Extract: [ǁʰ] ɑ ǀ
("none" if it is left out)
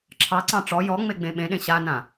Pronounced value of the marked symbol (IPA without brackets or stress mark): ǁʰ